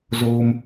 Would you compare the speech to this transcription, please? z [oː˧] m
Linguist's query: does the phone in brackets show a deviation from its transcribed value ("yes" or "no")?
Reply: no